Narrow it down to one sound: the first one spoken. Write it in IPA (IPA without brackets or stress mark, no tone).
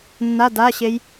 nː